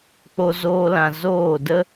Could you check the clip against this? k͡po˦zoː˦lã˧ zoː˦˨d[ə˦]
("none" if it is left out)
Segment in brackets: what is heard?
ə˦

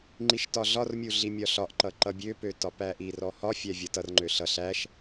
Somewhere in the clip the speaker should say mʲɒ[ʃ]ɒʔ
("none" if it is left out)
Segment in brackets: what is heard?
ɬ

